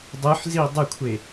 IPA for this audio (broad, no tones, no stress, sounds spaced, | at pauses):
dˤ ɯ ħ z i dˤ ə kʷʰ e